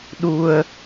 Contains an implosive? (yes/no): yes